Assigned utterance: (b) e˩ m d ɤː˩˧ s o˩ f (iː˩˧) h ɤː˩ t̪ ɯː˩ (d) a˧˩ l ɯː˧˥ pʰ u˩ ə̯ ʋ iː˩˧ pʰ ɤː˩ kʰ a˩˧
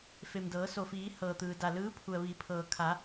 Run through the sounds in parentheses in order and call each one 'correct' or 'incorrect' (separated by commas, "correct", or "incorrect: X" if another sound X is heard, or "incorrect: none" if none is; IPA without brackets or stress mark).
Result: incorrect: f, correct, correct